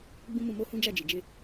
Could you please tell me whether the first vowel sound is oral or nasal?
nasal